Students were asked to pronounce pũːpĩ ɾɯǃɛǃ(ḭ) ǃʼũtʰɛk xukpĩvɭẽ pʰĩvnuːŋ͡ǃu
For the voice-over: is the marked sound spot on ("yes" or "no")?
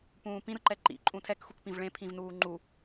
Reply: yes